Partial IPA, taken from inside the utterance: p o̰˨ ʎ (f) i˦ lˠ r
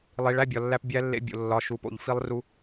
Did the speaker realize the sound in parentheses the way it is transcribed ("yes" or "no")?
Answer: yes